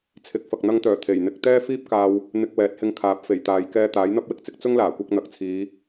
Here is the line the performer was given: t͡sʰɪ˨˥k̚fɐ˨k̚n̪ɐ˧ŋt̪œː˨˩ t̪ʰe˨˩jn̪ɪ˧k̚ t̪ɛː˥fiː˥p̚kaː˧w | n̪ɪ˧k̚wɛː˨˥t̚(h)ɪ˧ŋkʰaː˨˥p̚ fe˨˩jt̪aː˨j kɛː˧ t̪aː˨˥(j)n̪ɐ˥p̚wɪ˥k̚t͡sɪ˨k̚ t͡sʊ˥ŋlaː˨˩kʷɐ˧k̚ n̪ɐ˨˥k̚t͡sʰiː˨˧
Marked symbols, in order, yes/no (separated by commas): yes, yes